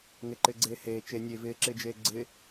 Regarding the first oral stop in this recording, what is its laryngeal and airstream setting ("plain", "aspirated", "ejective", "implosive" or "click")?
click